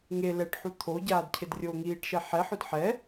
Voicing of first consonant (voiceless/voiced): voiced